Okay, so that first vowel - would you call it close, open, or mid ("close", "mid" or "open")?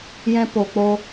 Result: mid